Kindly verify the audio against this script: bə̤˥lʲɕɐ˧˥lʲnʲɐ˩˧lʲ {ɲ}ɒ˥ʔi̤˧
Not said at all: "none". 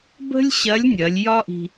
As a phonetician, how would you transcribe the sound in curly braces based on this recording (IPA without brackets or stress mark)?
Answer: j